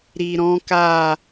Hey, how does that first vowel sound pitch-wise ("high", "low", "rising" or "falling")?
low